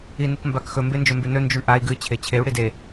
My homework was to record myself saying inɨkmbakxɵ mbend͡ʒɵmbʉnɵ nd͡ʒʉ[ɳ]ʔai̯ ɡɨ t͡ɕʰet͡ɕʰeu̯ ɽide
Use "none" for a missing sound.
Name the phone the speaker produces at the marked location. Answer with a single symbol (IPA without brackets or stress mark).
ɳ